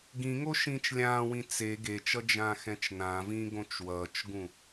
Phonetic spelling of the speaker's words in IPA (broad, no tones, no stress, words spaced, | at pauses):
ɡĩŋo ʃĩːt͡ʃlʲãːwĩ t͡se ɡet͡ʃʌ d͡ʒãːxɛ̃t͡ʃnãvĩː ɡõt͡ʃwʌːt͡ʃɡũ